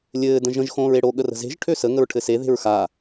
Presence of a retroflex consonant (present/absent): present